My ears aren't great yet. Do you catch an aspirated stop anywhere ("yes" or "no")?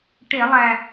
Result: no